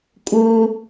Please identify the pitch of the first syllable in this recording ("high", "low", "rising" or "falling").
high